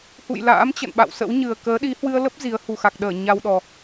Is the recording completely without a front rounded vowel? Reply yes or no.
yes